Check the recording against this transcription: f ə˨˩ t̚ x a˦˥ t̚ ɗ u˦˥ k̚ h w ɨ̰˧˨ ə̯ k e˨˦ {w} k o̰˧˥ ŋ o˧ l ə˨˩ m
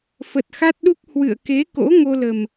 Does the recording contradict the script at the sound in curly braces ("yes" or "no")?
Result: yes